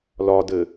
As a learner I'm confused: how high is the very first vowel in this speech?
low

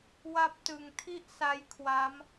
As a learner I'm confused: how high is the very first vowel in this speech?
low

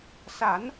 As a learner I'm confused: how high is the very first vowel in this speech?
low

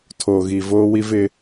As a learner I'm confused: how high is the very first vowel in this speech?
mid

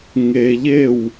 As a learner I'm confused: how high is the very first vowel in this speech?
mid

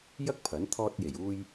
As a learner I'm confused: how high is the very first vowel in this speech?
low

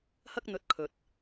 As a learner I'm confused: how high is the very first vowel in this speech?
low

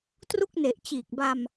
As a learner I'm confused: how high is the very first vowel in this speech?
high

